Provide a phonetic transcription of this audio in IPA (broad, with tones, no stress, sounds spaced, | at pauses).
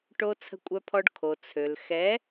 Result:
ʈ o˧ t͡sʰ ə̤˧ kʷʼ œ˧ pʰ ɔ˧ ɖ kʰ o˨ t͡sʰ ø˨ l x ɛ˨˦